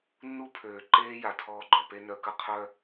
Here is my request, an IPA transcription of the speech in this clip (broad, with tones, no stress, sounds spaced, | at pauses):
nː u˦ pʰ øː˨ ǃ eː˦ j a˨ tʰ ɔː˧ ɡ͡ǃ œ˨ p e˧ n œ˨ k ə˧ qʰ œ˦